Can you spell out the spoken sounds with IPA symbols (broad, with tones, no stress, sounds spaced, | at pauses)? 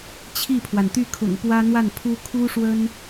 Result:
t͡ɕʰ i˥˩ pʰ w a˩ n t̪ y˥˩ kʰ ʊ̰˨˩ ŋ p w ä˥ n̪ w a˥˩ n pʰ u˥ kʰ u˥ ʂ w ə˥ n